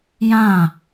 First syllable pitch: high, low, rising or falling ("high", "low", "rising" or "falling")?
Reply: falling